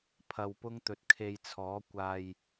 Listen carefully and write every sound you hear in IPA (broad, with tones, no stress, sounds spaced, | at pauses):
pʰ ɐ˧ w p ʊ˥ ŋ t̪ ɵ˧ t̚ kʰ e˧ j t͡sʰ ɔː˨˥ kʷ aː˧ j